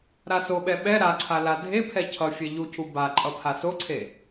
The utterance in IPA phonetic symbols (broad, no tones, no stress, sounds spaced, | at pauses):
ɾ a s o ɓ ɛ ɓ ɛ ɾ a ǀʰ a l a dʱ e pʰ ɛ cʰ ʌ fʲ ɛ ʎ u cʰ u b a ǃʼ ʌ pʰ a s o ǀʰ e